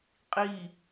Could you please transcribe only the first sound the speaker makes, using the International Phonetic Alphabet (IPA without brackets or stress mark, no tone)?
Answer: qʼ